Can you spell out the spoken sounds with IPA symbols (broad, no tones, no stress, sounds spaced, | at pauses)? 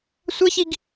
sʷ ɤ ç i ɡ